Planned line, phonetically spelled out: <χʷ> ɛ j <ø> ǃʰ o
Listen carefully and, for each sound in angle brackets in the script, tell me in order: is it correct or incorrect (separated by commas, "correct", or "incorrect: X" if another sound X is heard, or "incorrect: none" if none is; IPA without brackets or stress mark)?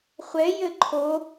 correct, incorrect: ɘ